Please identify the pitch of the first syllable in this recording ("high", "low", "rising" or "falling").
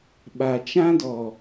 low